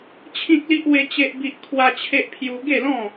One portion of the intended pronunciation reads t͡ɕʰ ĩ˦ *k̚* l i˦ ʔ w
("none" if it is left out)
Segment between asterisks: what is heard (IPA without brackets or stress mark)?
k̚